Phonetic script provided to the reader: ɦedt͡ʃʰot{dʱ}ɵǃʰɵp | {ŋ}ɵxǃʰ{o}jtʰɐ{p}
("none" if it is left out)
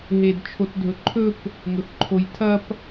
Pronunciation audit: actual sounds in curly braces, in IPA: dʱ, ŋ, o, p

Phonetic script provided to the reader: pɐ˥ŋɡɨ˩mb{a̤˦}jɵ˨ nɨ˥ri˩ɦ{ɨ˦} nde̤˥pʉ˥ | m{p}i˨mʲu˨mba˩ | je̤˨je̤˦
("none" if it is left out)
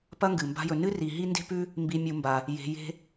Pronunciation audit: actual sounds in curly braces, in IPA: a̤˦, i˦, b

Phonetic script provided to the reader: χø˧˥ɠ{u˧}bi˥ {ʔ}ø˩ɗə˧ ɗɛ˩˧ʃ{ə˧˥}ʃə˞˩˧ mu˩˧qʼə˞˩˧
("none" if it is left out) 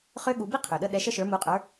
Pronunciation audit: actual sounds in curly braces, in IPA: u˩˧, qʰ, ə˧

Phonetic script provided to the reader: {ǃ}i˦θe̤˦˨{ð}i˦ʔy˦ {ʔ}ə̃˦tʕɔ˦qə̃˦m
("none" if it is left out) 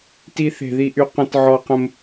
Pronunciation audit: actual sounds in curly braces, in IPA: t, ð, q

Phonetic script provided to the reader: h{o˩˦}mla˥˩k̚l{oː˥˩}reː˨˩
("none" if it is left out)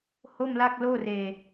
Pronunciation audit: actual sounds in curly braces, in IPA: o˥˩, oː˥˩

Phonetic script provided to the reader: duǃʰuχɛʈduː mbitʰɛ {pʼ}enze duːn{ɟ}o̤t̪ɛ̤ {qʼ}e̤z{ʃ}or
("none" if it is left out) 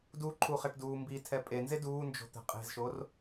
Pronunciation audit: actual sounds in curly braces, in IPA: pʼ, d͡ʒ, qʼ, ʃ

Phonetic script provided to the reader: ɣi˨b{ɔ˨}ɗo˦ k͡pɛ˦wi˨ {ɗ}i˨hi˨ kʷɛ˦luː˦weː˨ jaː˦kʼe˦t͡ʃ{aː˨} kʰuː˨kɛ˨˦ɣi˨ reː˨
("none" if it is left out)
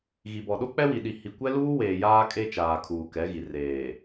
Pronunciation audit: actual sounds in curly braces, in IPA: ɔ˨, ɗ, aː˨

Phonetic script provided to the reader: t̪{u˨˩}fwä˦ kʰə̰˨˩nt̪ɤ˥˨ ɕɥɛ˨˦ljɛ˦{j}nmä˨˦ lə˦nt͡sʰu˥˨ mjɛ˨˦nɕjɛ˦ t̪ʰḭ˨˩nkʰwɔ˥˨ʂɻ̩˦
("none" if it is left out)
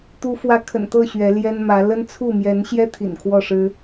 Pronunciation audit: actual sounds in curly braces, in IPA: u˦, none

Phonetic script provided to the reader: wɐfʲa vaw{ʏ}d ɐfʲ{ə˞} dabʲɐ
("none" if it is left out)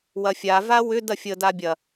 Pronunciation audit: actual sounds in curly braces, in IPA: ʏ, ə

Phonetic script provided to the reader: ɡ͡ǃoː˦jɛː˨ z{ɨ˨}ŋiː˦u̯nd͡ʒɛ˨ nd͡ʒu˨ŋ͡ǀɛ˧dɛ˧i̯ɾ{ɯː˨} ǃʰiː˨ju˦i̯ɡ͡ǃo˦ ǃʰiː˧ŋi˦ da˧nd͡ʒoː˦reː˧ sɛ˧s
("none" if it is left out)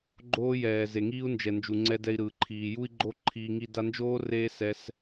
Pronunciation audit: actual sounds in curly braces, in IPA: e˨, ɯː˨

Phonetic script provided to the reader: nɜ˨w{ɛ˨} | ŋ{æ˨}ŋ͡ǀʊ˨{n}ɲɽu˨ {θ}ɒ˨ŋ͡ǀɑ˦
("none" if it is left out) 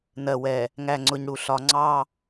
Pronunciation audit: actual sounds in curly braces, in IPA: ɛ˨, æ˨, none, ɬ

